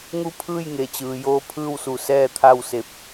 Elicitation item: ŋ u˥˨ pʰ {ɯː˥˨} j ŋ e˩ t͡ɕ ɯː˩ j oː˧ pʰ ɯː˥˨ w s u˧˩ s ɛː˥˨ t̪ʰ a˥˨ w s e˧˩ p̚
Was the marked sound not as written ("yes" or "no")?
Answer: no